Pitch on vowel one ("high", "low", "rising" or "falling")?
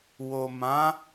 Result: low